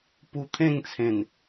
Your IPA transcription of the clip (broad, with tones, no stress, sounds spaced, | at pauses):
p u˧ t̪ʰ ẽ˥˧ ŋ t͡sʰ ẽ˨˩ n